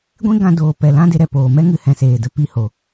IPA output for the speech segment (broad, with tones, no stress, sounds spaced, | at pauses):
ɡʷ ĩ˦ ɡ ã˧ d oː˨ p ɛ˨ l ã˦ d e˧ ɾ ɛ˨ p oː˨ m ɛ˦ ŋ ɨ˨ h ɛ̃˨ s eː˨ d ə˧ p i˦ h o˨